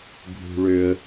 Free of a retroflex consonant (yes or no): no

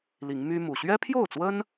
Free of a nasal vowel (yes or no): yes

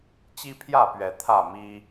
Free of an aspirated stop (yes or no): no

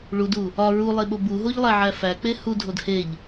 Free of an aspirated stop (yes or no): yes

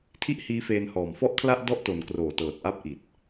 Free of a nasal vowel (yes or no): yes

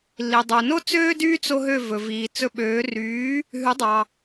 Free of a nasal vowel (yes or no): yes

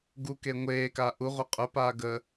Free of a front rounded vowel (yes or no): no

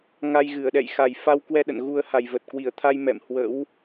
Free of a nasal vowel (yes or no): yes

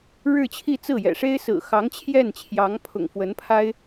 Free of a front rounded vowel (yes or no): yes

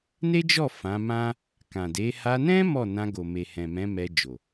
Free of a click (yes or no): yes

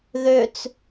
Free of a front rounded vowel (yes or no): no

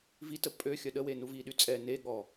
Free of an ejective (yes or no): no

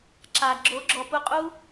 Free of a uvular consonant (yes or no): no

